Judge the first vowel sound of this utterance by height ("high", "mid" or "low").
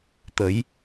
mid